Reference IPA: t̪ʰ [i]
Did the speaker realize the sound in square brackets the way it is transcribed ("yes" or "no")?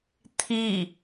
yes